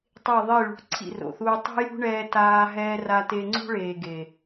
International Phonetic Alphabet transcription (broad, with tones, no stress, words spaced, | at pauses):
tˤe˦˨ðˤi˦˨ɭṳ˨˦ ǀʰḭ˦˨ro̰˨θuː˧ tˤṳ˦jṳ˦ ɳɛː˧taː˧ ɦɛː˧ra˧te˧ ŋ͡ǀṳ˦ɭeː˨ɡe˨